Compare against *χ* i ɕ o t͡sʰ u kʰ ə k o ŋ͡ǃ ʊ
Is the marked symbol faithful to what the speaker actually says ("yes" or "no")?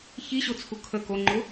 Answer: no